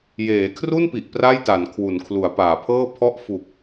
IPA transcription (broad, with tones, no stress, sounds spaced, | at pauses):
j eː˩˦ kʰ r u˥˩ n p i˨˩ ʔ p r a˥˩ j t a˩˦ n kʰ w u˩˦ n kʰ l u˩˦ a̯ p aː˩˦ pʰ ɤː˥˩ pʰ ɔ˥˩ ʔ f u˨˩ k̚